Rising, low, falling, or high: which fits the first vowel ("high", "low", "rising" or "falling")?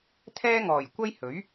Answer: high